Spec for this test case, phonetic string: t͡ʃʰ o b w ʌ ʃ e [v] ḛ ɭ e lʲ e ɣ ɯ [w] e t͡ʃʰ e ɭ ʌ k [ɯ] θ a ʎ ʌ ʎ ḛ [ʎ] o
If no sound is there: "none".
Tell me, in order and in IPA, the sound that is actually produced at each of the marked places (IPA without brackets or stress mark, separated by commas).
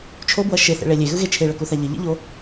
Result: θ, ɣ, u, ʎ